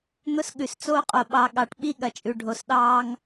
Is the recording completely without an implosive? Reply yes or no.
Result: no